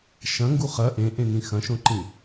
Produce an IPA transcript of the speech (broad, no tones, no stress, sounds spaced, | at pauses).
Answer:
ʃ ɐ̃ ŋ ɡ u χ ɐ ʔ ẽ ʔ ẽ n ĩ x ɐ̃ ʃ õ ǃ ĩ